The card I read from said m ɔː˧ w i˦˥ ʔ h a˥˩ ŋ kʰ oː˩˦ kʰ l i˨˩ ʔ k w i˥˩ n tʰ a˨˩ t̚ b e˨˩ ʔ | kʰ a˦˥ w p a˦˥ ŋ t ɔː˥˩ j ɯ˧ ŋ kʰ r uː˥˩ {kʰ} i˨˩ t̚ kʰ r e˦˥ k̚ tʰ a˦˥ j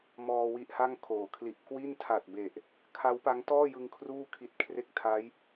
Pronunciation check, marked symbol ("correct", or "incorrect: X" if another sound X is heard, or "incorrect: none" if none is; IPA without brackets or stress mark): correct